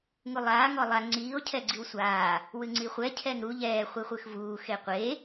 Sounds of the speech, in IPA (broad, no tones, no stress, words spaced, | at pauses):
ŋulˠaː ŋɔlˠa ŋ͡ǀiːo̯ cʰɛɡ͡ǀiwsʷaː | wɨŋ͡ǀiχʷɛ cʰɛŋɾu ʎɛː χʷiχʷɨxvuː xeqʷe